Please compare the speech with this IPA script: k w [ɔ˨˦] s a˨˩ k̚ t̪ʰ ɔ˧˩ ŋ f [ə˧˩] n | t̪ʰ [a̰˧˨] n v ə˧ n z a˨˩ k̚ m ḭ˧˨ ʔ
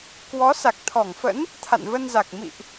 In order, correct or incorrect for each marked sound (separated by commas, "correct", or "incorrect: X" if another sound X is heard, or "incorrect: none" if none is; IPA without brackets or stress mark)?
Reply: correct, incorrect: ə̰˧˥, correct